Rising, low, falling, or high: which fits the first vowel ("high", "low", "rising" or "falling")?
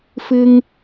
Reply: low